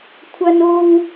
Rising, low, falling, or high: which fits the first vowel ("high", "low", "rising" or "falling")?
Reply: high